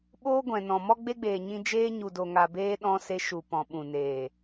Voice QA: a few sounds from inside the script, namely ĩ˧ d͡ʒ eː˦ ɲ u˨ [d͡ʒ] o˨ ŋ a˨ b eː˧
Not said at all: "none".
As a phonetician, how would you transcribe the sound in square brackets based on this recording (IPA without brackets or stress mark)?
d